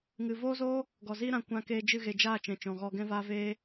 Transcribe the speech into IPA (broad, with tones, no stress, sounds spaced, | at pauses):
ŋ ɨ˨ v oː˦ z oː˦ | ɡ ɔ˨ z iː˦ ɾ ã˧ kʷ ã˧ k eː˧ d͡ʒ ɨ˦˨ ɣ e˨ d͡ʒ aː˦˨ t͡ʃ ɛ̃˨ t͡ʃ ɔ̃˨ ɣ ɔ˧ ɡ ɛ̃˦ v aː˦ v eː˦